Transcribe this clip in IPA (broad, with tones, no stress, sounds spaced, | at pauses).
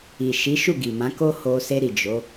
i˨ ʃ i˨˦ ʃ u˦˨ ɡ i˨ m ã˨˦ k o˦ h o˧ s e˧ ɾ i˨ d͡ʒ o˨˦